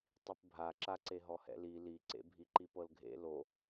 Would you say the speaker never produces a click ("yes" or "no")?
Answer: no